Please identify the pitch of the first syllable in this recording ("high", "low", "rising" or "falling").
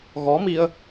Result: rising